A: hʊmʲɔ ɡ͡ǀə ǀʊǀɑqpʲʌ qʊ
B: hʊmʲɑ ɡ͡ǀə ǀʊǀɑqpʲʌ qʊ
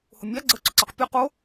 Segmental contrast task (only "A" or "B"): B